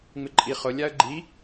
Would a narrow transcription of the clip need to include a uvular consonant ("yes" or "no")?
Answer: yes